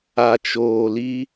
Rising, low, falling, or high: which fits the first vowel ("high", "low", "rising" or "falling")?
low